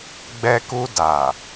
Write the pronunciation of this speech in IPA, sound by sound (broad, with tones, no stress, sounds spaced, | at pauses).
ɡ͡b ɛ˧ k u˧ d a˨